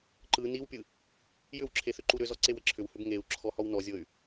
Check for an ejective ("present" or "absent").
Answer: absent